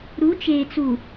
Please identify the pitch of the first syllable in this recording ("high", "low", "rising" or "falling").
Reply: rising